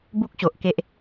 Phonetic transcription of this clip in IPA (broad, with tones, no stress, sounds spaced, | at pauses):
b u˦ k̚ ɕ o˨ ʔ k e˦ ʔ